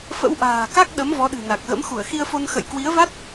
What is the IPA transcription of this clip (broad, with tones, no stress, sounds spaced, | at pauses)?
f ə̰˧˥ w ʔ a̤ː˨˩ k a˦˥ k̚ ɗ ə˨˦ m v ɔ˨˦ ɗ ɨ̤˨˩ n a˨˩ k̚ ɣ ə̰˧˥ m x u˧˩ ə̯ x i˧ ə̯ f o˧ n x ə̰˧˨ j k w i˨˦ ə̯ v a˦˥ t̚